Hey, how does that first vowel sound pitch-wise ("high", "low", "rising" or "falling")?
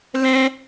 high